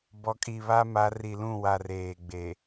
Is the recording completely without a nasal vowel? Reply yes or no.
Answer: no